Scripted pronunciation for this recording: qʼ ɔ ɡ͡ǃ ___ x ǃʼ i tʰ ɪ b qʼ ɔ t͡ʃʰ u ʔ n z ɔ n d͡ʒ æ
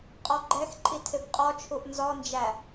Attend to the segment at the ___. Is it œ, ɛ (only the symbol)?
ɛ